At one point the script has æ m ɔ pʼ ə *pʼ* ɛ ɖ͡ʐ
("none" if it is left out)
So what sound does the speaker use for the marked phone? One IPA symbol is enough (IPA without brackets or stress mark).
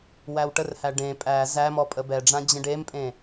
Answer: b